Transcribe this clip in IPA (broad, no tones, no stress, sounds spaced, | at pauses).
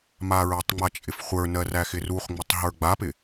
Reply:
m a ɹ ɜ tˤ ŋ͡m a t͡ʃʼ ɪ f χʷ ə˞ n ɜ r æ x ɪ r u χ ŋ͡m ɪ tˤ ɦ ə˞ ɡ͡b a p ɪ